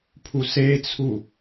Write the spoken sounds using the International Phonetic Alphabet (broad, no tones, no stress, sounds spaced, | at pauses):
pʰ u s e t͡sʰ u